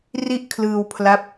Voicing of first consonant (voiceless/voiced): voiced